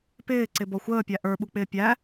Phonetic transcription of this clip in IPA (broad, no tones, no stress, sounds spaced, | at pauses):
p ɪː ǀ ɪ b ɔ xʷ əː pʲ æ ʔ ə˞ ɓ u k͡p ɪː pʲ æ